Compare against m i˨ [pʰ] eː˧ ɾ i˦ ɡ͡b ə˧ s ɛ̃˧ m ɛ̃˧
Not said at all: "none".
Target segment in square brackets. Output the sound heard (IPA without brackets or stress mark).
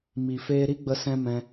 f